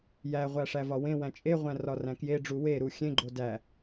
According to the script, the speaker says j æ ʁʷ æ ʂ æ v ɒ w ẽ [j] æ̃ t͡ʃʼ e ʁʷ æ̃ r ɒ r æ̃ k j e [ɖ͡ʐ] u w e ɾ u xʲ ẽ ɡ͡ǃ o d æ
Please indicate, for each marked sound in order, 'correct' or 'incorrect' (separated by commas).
incorrect, correct